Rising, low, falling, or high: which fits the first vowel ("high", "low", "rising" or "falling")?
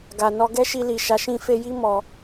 low